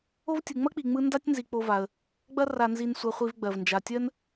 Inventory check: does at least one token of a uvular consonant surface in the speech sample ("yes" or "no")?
yes